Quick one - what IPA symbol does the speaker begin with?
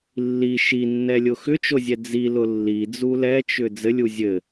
lː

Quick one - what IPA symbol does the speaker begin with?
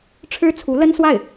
ʈ͡ʂʰ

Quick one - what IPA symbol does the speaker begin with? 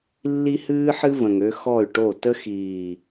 lː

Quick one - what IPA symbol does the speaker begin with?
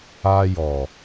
a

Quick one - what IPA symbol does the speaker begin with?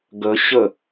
ɡ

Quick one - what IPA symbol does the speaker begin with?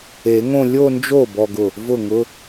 e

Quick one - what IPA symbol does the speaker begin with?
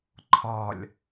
ǃʰ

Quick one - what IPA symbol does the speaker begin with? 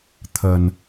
t̪ʰ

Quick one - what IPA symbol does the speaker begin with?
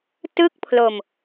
t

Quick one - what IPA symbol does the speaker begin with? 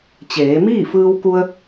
t͡ɕ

